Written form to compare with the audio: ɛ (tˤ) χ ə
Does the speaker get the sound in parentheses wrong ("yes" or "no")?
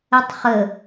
no